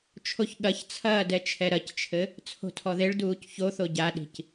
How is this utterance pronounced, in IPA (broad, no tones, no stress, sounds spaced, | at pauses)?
t͡ʃʰ o ç ɠ ɐ ç t͡sʰ ɐː d ɛ t͡ʃʰ ɛ ɾ ɐ c t͡ʃʰ ɘ | t͡sʰ o̤ tʰ ɔ ð e ɭ d uː c ç o θ o ɟ a ɗ i̤ c